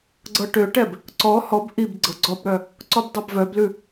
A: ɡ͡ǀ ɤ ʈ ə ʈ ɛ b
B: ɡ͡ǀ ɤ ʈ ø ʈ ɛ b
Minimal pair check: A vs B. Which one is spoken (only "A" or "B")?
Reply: B